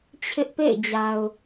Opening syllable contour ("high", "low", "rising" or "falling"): high